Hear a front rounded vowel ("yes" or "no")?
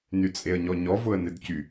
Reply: yes